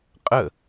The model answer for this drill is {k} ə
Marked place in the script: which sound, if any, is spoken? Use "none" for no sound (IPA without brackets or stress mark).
qʼ